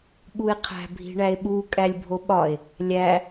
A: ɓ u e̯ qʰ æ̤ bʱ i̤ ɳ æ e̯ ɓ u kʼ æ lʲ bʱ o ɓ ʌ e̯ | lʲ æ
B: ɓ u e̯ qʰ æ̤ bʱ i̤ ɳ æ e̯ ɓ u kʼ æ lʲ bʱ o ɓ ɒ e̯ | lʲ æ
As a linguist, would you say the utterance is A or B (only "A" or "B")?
B